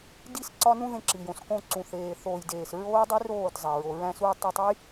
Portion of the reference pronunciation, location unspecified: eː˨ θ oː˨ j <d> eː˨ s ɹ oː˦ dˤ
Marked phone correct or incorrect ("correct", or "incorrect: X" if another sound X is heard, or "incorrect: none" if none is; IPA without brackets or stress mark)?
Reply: correct